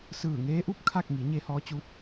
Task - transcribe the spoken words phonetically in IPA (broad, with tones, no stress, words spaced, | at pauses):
sɯː˧˩ŋeː˧˥ʔu˥˨p̚ kʰa˥˨k̚ŋi˩˧ ɲe˧hɔː˧˥t͡ɕu˧˥t̚